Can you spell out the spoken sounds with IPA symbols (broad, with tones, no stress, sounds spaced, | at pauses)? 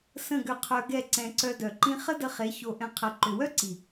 s ə̃˦˨ ɡ ʏ˧ qʰ œ˧ ɡ ɛ˦˨ ǀ ɛ̃˧ ǀ œ˧ d œ˨ ǃ ĩ˦ χ ə˦ d ə˧ χ e˨˦ ç o˧ ʔ ɛ̃˧ qʰ ə˨ ǃ ʏ˨ w œ˦ ǀ i˨